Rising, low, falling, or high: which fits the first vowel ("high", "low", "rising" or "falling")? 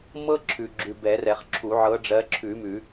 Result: high